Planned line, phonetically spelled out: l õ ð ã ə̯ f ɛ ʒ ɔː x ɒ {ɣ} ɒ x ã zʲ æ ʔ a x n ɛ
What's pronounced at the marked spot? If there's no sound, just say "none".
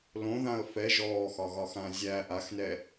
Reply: ɣ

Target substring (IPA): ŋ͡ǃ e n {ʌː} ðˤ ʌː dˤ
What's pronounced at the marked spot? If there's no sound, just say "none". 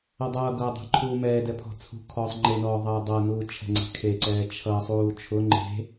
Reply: ɔː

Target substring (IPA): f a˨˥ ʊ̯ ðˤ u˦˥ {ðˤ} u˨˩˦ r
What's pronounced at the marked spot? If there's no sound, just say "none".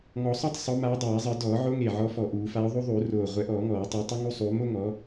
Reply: ðˤ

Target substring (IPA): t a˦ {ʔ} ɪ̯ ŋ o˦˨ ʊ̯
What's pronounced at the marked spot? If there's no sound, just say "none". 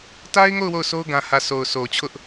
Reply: none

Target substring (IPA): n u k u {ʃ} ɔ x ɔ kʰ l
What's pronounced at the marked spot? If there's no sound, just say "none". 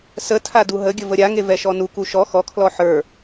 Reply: ʃ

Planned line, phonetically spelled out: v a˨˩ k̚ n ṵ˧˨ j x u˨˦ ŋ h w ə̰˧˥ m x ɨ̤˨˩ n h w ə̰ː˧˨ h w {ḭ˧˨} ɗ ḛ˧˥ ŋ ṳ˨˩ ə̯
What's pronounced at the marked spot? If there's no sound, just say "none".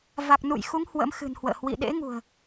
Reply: ḭ˧˨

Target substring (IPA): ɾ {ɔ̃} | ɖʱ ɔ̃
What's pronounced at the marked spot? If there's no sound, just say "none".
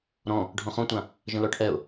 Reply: ɔ̃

